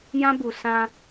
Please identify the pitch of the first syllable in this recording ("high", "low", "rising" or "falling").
high